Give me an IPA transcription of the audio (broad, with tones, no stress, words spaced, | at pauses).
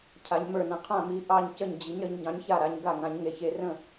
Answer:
cʰa˩˧ɲmə˞˧˩ nə̃˩˧qʰã˧˩ mi˩˧ ʔɑ˧˩ɲcə˧˩ɲ d͡ʑi˩˧ɲɾə˩˧ɲ ɟɑ̃˩˧ɲça˧˩ ɾa˩˧ɲɡa˧˩ŋã˩˧ɲ ŋe˩˧ çe˩˧rə̃˧˩